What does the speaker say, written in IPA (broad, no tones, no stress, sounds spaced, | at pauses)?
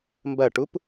m b ɐ ʈ u p